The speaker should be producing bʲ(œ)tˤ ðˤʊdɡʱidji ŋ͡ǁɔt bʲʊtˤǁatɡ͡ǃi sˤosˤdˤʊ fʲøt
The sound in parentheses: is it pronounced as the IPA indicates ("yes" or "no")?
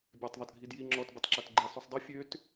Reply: no